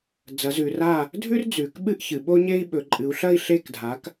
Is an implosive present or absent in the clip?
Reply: present